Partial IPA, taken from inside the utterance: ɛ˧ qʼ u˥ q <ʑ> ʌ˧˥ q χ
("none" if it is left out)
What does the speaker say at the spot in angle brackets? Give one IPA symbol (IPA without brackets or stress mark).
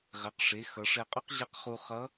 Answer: ʑ